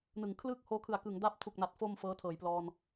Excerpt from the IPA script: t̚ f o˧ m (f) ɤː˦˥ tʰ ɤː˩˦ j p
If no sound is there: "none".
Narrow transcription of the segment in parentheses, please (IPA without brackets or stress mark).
f